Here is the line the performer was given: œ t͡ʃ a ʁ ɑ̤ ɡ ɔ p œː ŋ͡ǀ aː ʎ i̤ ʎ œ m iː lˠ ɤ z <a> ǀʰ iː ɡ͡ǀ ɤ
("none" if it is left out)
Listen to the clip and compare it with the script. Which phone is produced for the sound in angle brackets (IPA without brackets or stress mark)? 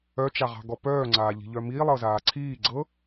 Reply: aː